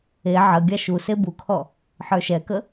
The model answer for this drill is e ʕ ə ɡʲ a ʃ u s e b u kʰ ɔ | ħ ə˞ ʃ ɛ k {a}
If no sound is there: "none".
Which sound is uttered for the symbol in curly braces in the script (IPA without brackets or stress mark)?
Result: ə